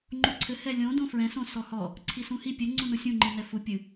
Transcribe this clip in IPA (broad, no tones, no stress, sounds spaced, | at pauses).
ŋ͡ǃ u ǀʰ ɘ h ɛ lʲ õ d õ f ɹ ɛ̃ s õ s ɔ h ɔ | ǀʰ i s ũ h i pʲ ɘ ŋ͡ǀ ũ n u sʲ ũ ŋ͡ǃ i n ɛ f u pʲ ɨ